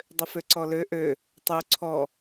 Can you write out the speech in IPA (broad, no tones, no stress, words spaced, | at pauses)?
dˤʏføǀɔlø ʔø | tˤu ǀʰɔ